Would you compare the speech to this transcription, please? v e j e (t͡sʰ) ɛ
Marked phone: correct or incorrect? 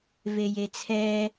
correct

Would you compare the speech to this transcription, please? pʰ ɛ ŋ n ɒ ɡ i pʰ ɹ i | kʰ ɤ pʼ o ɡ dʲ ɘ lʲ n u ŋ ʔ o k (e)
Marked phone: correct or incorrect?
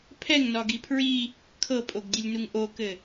incorrect: ɘ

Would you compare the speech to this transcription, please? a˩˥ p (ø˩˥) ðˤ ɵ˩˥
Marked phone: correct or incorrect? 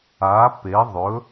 incorrect: e˩˥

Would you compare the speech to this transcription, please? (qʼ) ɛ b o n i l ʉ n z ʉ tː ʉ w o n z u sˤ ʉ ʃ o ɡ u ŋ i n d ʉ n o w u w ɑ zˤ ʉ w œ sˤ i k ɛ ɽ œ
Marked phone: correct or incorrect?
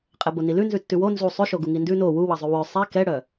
correct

